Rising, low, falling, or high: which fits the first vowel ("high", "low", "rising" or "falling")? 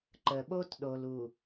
low